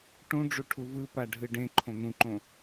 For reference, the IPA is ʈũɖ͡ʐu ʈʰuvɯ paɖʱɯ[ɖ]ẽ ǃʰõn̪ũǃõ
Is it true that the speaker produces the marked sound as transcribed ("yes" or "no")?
yes